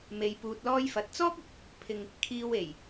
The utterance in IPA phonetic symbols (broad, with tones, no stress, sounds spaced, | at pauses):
m e˨ j p uː˧ t̚ l ɔː˥ j f ɐ˨˥ t̚ t͡s ɔː˥ k̚ ɪ˨ k̚ | pʰ ɪ˧ ŋ | kʰ iː˧ w e˨˩ j